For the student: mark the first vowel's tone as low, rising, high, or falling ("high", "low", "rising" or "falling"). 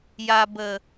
low